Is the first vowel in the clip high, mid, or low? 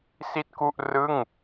high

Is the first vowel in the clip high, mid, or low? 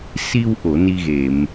high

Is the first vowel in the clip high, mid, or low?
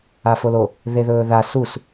low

